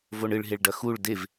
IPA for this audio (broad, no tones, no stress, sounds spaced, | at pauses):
v o ɳ ɨ ɭ ɦ e ɭ ɖ ɐ x u ɭ d e v